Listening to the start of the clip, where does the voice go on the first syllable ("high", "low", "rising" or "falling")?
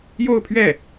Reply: falling